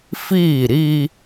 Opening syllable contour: falling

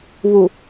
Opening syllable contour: low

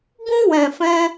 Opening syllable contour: high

